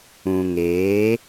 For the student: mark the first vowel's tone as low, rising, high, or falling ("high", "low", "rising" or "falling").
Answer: low